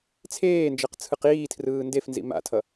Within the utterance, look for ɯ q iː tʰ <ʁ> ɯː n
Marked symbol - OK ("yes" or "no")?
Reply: no